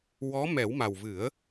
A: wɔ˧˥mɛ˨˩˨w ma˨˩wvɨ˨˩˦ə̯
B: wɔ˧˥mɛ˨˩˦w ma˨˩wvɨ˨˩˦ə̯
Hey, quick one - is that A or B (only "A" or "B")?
B